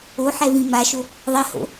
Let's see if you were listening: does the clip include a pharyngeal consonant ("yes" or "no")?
yes